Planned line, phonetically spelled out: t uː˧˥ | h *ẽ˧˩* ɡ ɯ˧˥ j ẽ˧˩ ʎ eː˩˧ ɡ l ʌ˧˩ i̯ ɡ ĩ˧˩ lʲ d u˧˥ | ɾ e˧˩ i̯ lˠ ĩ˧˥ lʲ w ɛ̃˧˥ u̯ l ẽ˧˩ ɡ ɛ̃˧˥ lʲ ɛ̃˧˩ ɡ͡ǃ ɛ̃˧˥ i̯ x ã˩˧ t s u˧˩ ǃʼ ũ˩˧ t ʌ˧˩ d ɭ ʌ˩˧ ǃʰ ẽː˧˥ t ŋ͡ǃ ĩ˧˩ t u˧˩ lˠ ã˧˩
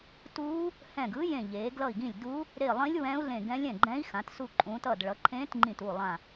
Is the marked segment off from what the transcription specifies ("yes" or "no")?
yes